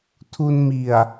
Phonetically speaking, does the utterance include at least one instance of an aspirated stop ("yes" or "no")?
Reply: yes